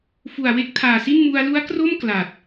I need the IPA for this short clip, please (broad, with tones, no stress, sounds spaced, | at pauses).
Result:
f u˨˩ a̯ w e˦˥ k̚ tʰ aː˨˩ s i˥˩ n m u˧ a̯ l u˦˥ a̯ k r o˥˩ m k l a˨˩ t̚